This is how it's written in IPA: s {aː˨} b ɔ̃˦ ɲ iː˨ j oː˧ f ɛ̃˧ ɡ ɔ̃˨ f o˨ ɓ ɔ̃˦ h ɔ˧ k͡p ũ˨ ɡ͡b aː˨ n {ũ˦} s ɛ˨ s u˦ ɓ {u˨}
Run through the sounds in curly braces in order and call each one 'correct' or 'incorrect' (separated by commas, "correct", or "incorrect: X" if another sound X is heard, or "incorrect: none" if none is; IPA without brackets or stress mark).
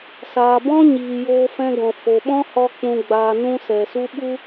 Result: correct, correct, incorrect: u˦